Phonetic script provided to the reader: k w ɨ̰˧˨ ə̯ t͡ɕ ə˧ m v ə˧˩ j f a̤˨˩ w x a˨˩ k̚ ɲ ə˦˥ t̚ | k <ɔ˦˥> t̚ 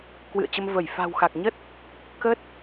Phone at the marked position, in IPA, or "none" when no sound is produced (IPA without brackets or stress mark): ə˦˥